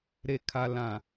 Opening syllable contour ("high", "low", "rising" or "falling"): low